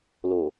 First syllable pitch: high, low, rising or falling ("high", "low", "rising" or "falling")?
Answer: low